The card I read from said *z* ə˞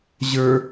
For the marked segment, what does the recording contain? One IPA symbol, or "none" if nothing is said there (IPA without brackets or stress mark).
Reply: ʑ